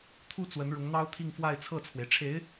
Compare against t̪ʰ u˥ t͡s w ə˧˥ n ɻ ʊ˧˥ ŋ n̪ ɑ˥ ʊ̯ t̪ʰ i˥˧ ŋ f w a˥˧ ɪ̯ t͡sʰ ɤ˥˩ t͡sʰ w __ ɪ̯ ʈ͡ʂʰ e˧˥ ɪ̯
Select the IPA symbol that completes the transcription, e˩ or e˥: e˩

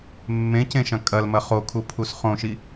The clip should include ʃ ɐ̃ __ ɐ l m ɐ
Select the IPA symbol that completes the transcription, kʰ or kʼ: kʼ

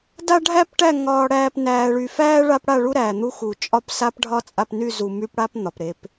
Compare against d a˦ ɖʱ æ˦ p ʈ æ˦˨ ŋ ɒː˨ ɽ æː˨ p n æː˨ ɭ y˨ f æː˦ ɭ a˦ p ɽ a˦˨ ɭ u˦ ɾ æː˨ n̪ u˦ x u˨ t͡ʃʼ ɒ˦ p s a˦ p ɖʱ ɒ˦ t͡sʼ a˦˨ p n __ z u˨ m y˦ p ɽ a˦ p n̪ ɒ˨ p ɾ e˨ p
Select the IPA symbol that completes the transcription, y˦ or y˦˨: y˦˨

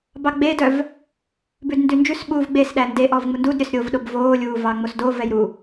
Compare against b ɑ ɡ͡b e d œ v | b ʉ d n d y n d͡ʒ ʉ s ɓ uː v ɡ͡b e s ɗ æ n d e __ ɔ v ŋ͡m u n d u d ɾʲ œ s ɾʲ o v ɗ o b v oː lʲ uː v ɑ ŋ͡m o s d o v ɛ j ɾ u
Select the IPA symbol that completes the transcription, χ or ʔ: ʔ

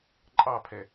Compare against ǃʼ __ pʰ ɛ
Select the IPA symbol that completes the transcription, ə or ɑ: ɑ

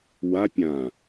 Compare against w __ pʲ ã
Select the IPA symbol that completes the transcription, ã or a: a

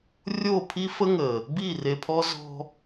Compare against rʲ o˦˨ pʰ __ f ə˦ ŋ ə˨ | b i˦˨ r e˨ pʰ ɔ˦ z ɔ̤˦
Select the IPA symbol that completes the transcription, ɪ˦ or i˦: i˦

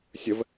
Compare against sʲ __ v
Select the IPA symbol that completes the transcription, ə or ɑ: ə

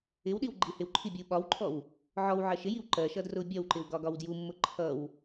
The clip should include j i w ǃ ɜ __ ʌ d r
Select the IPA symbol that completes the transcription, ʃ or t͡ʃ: ʃ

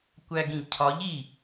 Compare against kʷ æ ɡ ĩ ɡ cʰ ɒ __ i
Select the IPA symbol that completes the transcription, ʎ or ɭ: ʎ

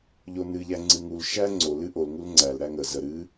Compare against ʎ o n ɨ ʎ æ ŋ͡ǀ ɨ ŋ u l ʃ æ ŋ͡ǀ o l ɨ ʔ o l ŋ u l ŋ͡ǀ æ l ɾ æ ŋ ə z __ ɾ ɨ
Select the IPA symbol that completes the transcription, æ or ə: ə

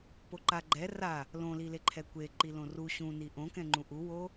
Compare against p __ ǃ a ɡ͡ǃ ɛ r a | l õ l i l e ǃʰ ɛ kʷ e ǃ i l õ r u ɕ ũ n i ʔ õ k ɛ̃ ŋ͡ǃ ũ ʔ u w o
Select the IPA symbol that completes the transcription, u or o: o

